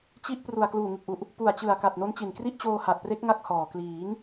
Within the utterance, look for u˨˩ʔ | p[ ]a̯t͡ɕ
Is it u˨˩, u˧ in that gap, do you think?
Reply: u˨˩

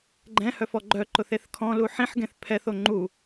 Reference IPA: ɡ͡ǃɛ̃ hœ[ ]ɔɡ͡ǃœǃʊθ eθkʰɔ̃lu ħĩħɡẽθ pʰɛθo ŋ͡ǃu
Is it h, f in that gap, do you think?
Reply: f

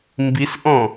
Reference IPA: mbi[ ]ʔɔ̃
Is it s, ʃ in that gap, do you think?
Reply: s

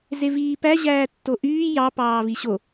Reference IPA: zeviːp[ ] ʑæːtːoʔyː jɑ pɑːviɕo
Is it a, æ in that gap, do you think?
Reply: æ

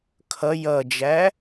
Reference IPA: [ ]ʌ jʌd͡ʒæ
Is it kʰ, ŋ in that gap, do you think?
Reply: kʰ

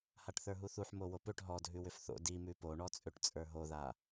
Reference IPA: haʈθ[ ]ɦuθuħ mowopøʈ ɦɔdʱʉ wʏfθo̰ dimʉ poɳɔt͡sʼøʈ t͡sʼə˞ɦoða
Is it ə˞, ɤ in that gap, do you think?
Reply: ə˞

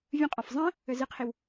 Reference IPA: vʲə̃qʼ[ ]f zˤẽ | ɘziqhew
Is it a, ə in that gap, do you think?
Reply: a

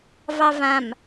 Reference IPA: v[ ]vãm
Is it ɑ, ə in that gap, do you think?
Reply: ɑ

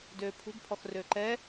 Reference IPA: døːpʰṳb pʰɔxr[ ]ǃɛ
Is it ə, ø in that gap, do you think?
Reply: ø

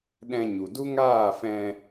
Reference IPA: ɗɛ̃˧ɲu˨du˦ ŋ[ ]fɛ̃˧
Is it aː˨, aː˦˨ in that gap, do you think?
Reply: aː˦˨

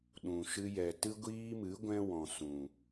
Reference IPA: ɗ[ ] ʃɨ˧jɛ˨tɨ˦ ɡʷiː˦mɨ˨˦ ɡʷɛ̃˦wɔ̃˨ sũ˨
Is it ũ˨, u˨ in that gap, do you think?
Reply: ũ˨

